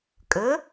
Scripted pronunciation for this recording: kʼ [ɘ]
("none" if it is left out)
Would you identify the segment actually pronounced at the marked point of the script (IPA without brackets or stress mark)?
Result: ɘ